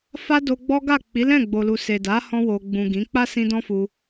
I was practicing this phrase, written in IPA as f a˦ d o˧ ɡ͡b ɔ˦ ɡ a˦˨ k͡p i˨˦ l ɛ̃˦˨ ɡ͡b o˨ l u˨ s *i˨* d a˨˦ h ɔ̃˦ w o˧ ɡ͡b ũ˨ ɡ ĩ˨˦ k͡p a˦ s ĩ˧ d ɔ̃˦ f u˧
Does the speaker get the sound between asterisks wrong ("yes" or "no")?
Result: yes